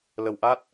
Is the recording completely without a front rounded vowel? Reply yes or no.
yes